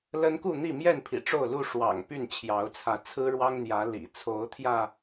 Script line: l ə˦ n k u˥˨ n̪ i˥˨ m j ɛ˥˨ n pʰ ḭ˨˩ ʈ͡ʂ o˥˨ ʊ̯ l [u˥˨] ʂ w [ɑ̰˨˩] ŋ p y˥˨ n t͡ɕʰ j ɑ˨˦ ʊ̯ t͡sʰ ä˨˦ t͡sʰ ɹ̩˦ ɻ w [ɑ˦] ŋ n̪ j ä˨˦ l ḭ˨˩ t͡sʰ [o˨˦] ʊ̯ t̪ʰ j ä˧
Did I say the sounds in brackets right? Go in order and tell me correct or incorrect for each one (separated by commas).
correct, correct, correct, correct